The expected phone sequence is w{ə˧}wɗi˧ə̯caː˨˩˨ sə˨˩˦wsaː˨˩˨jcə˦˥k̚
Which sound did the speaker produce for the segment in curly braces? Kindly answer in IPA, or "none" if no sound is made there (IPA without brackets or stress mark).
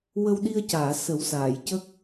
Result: ə˧